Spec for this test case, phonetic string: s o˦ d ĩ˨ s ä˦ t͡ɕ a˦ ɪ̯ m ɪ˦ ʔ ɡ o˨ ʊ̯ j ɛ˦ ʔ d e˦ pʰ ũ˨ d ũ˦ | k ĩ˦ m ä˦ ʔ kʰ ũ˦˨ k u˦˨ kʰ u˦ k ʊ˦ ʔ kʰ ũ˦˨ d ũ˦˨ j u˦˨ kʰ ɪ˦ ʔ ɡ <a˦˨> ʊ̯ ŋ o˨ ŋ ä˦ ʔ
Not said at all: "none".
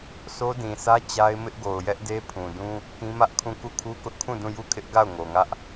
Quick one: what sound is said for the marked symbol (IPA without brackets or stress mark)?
a˦˨